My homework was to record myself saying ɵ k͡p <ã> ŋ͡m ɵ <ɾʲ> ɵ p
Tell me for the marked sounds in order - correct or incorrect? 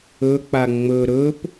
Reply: incorrect: a, incorrect: ɾ

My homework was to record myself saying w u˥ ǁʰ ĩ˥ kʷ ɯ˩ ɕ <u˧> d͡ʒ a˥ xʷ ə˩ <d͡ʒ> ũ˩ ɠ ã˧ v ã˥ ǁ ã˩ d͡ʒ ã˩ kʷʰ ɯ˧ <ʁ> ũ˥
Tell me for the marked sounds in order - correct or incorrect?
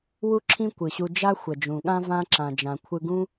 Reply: correct, correct, incorrect: ɡ

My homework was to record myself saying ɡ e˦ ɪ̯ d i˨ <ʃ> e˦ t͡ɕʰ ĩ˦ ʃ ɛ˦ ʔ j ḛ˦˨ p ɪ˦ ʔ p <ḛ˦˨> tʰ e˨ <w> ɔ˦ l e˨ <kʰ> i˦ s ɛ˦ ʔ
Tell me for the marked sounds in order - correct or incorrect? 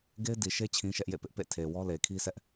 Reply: correct, correct, correct, correct

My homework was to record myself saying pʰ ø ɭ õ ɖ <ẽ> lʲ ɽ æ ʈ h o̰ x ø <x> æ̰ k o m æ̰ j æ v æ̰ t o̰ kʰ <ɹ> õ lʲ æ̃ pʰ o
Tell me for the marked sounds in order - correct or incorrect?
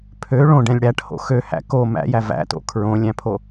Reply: incorrect: ɛ̃, incorrect: h, correct

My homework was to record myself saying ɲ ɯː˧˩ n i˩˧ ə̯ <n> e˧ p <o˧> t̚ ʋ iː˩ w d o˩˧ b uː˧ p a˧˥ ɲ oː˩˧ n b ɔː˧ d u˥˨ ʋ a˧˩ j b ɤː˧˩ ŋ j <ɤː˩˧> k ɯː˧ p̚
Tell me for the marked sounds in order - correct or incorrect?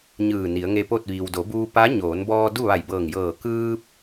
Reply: incorrect: ŋ, incorrect: o˥˨, incorrect: ɤː˧˩

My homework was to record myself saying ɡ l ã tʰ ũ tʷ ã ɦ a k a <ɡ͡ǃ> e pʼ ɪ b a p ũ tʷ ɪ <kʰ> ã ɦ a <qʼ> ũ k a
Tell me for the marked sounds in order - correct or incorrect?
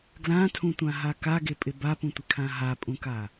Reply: incorrect: ɡ, correct, incorrect: pʼ

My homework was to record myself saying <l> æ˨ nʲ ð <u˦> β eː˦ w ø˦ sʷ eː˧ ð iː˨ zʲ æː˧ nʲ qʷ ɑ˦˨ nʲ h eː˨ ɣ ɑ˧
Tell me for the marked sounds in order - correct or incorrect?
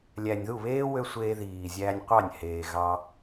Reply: incorrect: lʲ, incorrect: u˦˨

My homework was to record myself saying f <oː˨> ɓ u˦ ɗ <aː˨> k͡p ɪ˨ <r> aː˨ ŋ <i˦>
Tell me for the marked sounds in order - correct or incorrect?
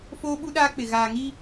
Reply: incorrect: oː˦, incorrect: aː˦, incorrect: ɣ, correct

